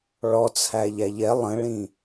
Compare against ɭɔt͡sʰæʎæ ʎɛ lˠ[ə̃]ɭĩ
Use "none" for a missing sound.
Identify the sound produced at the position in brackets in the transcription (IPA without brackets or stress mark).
ə̃